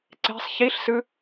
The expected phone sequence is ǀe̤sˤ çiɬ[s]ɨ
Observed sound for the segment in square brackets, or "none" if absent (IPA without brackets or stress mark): s